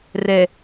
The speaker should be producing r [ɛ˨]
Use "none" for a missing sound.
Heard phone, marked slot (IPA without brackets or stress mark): ɛ˨